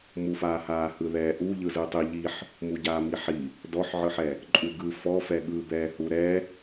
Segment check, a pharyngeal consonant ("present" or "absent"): present